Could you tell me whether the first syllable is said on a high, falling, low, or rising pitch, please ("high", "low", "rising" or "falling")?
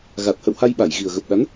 low